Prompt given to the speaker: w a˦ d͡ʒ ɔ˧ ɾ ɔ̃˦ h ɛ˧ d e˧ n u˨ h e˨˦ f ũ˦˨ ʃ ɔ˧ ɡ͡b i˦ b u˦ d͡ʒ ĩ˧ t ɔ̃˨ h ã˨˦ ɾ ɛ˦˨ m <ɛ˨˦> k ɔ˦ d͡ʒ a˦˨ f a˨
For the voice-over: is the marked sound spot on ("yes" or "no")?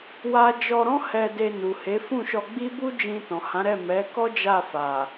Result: yes